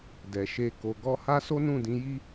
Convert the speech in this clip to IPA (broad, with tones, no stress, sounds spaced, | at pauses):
d ɛ˨ ʃ e˧ k o˨ ɡ ɔ˧ h a˦ s o˦ n ũ˦˨ d ĩ˨˦ j i˦